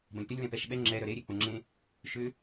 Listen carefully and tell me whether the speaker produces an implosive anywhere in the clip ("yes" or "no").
yes